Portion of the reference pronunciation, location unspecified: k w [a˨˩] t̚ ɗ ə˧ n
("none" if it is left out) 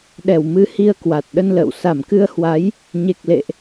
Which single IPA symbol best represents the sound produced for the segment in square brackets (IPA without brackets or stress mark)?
a˨˩